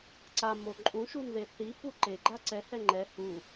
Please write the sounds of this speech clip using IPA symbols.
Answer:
ǀamo ǃʼũʃun ðeθi puǃeɡ͡ǃa ǀɛhɛ ŋ͡ǃɛ hu

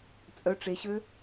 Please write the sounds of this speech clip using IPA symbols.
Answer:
t͡sʼœ ʈ͡ʂeɕø

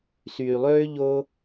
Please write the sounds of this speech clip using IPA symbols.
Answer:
syː˧lˠøː˥ ʎo˥

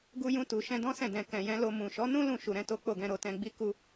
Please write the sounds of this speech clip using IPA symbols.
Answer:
ɡu˧jũ˧tu˨ ʃɛ̃˧dɔ̃˦sɛ̃˦˨ dɛ̃˨ kɛ̃˨jɛ̃˨˦ lo˧ mũ˨ʃɔ˨˦nũ˦ lũ˦˨ʃu˨ɾɛ̃˨˦ to˦k͡po˦˨ɡɛ̃˧ɾo˧ tɛ̃˧ɡ͡bi˦ ku˦

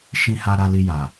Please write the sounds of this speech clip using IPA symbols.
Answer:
ʃĩ˧ha˧ ɾa˧li˧ ja˨

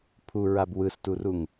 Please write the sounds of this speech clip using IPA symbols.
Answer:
pʰuɹab wɯsturuŋ

